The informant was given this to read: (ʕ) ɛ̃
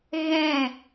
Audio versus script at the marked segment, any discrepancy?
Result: yes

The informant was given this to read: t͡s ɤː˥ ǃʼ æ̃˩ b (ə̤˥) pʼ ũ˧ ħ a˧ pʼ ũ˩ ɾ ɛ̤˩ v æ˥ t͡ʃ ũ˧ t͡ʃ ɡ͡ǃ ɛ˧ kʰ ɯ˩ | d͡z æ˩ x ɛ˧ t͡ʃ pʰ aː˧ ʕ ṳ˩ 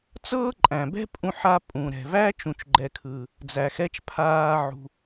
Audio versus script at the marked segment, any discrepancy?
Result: yes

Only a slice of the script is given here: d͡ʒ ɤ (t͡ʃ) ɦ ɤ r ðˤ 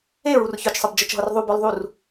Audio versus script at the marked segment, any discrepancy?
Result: no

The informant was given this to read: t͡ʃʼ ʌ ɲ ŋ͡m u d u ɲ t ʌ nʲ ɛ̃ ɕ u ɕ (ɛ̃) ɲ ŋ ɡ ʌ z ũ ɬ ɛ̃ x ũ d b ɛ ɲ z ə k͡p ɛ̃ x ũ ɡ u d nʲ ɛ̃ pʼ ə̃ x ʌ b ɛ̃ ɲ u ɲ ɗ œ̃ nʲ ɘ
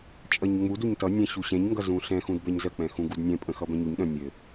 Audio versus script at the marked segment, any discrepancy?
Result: no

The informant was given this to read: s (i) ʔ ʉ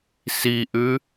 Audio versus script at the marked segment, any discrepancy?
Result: no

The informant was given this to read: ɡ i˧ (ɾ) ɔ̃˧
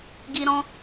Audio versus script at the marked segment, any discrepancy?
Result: no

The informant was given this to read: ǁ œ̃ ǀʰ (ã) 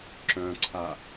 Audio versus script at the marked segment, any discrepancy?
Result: yes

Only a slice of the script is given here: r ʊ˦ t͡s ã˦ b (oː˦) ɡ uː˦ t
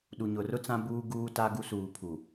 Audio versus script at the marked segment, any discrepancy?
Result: yes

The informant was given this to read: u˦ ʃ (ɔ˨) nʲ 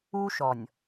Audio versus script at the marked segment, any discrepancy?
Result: no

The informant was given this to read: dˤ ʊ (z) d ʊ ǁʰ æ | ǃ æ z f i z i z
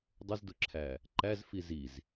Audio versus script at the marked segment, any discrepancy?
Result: no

